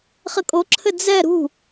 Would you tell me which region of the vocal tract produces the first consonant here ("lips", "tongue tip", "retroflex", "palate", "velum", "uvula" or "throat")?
uvula